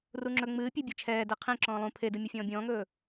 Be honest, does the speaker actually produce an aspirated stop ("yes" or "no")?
yes